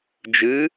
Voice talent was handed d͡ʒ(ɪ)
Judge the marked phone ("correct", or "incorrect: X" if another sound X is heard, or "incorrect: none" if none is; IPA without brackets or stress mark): incorrect: ɨ